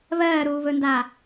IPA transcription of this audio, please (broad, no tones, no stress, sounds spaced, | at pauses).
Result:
β ɜː ɾ uː β ɵ n d a